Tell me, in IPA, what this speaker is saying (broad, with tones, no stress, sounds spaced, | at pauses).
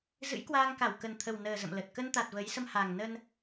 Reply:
z ɨ̰˧˥ j k w aː˧ ŋ k a˧˩ w k ə˨˩ n t̪ʰ ə˨˩ w n əː˨˩ z ə̰˧˨ m l ə˨˩ t̚ k ə˧ n t̪ a˨˩ t̚ v ə˨˦ j s ə˧ m h a˨˩ ŋ n ə˧ n